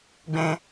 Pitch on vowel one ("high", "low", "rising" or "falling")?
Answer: high